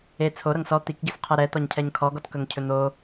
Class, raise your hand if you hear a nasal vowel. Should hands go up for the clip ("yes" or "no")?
no